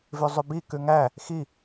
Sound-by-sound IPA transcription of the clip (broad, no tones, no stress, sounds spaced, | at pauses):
v ʉ zˤ ʉ b i k ʉ ŋ æ | x i